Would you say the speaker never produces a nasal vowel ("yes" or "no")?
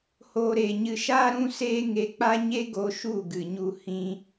no